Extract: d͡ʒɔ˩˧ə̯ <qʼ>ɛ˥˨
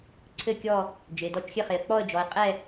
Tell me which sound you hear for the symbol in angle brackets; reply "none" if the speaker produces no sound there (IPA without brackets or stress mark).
qʼ